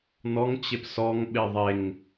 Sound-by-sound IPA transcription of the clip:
nɔŋt͡ɕep sɔŋɓe ðˤeŋ

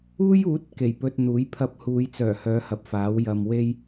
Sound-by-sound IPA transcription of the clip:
uː˥juː˨˥t̚ ke˨˩jpɵ˧t̚n̪uː˨˥j pʰɐ˧p̚huː˨˧jt͡sœː˨˩ hœː˨˥hɐ˨p̚ faː˨˥wjɐ˧m we˥j

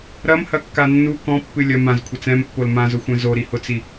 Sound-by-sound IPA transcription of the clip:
ɾɐmhɐkːa nːu kɔ̃pːɨ lʲɐ mãzkʷʰɐt͡s ɛ̃mpːol mãzʊxʷɛ̃ zoɾihʊt͡si

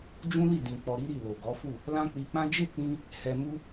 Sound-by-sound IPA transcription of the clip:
d͡ʒũ˦li˦˨ dĩ˨ k͡pɔ˧ɾi˦ɾi˦˨lo˨ ɡɔ˨˦fu˦˨ | lã˦ k͡pi˧k͡pã˦ d͡ʒe˦˨k͡pĩ˧ | hɛ˧mu˦

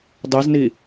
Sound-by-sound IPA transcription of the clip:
dˤizni

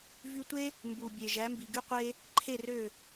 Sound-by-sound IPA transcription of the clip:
vy˧tʷe˥ | mbu˩bʲe˩ ʒæ˩˥mbi˩ɡy˥qʷe˥ | ǃʰe˥˩rø˥˩

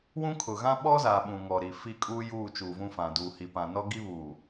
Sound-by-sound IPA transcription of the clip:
wũ˦kʰʊ˨ɣã˦ ɓɔ˦zaː˨ ɓũ˨ŋɔ˨ɾi˨ fi˦kʼuː˦ juː˦˨ t͡ʃuː˨vũ˦fã˨ duː˨hi˨ pã˨nɔ˦ɡi˦βuː˨

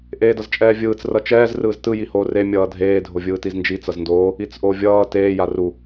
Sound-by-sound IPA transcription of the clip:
ʔeːdʌzt͡ʃʼɛːvʲɯːt͡s rʌt͡ʃɛːz rɯːztɯ jihoːre mʲʌːdʱeː dʱovʲɯːtiznd͡ʒi t͡sʌzndoː | it͡sʔovʲʌː teː jaru

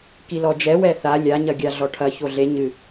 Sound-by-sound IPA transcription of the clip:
kilɔd͡ʒɛ wɛθa lʲa ɲɐɡʲaɮɔʈʰɐ çoɮe ɲɨ

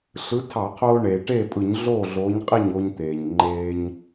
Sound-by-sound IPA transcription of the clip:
ɬɯ˨˥tʰɑ˧˩˧qʰoː˧ ɳeː˩ʈeː˥˩pʼɯ˧˩˧ɲ ɮoː˥˩ɮoː˨˥ɲqʼi˥˩ɲ o˧ɲt̪eː˩ɲ ŋ͡ǃeː˧ɲ

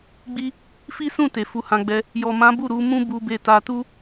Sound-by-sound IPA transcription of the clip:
ɡ͡bi˧ | fi˦sũ˦˨te˨ fu˨˦hã˧ɡ͡bɛ˧ | jɔ˨mã˨˦ bu˦˨ɾu˨˦mũ˦bu˧ be˧ta˧ tu˦

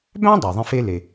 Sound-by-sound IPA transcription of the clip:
bæ̃˥ dˤuː˩ðˤẽ˥fe˥ le˩

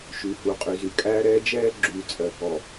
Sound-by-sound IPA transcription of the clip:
ʃy˨hu˨qʼy˨ zy˨kʼæː˦ɾɛː˦ d͡ʒɛː˦ɡ͡ǁyː˨ t͡sʼɜ˨ kɔ˨

